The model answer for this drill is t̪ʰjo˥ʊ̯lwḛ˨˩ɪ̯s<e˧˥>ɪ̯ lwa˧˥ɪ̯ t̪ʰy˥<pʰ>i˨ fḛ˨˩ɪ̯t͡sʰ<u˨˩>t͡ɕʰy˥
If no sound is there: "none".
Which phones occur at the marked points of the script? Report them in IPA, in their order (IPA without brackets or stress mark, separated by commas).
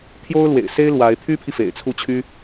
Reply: e˥, pʰ, u˥˩